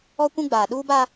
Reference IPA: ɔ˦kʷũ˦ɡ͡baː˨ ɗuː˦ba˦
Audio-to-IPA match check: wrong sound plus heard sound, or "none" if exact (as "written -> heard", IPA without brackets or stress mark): none